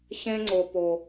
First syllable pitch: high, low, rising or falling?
high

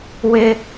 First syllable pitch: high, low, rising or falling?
high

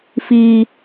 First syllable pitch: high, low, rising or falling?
high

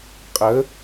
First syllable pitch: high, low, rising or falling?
rising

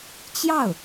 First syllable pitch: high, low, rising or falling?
falling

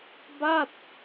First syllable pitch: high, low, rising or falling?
falling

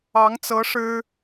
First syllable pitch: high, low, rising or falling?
rising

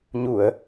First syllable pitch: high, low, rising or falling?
low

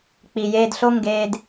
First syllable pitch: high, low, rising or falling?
low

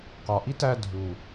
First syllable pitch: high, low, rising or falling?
low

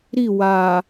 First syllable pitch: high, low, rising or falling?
falling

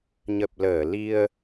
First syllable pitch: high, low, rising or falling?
low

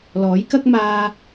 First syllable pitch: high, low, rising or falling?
rising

